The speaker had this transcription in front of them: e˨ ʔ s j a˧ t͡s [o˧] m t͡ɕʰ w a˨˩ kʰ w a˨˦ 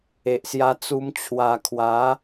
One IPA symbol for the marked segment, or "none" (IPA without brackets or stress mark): u˧